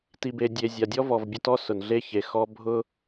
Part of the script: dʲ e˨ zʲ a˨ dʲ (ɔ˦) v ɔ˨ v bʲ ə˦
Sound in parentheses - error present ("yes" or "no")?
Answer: no